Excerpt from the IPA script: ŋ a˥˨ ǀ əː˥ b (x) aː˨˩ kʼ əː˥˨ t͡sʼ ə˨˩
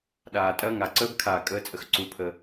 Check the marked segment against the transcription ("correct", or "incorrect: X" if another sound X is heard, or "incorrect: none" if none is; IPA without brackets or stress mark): incorrect: kʰ